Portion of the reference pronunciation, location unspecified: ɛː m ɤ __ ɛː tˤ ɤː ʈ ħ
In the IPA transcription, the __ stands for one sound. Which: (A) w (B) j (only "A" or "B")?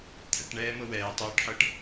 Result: A